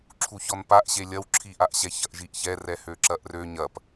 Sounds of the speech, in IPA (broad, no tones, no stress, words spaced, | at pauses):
ǁʰuçɔnpaʔɕe lʲɐwǁʰiʔaʔɕɛ çɐʔʒiʔçɛ rɛhøǁɐʔrø ɲɐp